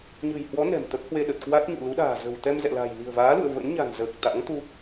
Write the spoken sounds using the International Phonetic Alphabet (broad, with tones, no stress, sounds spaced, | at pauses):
ɲ ɨ̤˨˩ j h w ɔ˨˦ n ɛ̤˨˩ m t̪ ə˦˥ p̚ h w e˧ ɗ ə˨˩ t̚ k w a˦˥ t̚ ɲ ṵ˧˨ l u˨˦ ɗ a̤ː˨˩ z ə̤˨˩ w t̪ ɛ˧ m z ɛ̰˧˨ l a̤˨˩ j l i̤˨˩ ə̯ v aː˨˦ l ṵ˧˨ ə̯ v ə̰˧˥ n ɲ a̤˨˩ n z əː˨˩ k̚ t̪ a̰˧˥ ŋ t̪ u˧